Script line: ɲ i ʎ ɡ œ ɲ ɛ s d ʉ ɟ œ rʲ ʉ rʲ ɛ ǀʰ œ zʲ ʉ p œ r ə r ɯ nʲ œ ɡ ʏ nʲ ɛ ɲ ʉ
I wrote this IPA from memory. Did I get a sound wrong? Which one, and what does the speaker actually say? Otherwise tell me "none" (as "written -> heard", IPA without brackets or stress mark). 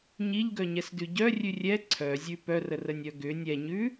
ɯ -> ə